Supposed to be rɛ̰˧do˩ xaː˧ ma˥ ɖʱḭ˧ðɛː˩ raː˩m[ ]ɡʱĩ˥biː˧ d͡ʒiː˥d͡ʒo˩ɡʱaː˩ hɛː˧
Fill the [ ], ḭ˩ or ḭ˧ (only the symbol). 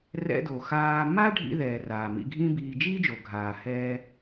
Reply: ḭ˧